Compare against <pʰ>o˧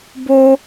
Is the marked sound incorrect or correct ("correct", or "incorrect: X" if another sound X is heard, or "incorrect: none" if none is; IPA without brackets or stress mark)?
incorrect: b